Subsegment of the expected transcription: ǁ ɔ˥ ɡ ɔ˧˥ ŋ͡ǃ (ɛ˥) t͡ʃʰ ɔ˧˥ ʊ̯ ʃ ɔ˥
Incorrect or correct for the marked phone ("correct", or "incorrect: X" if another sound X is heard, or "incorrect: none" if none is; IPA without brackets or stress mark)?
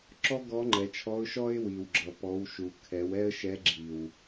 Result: incorrect: ɛ˩˧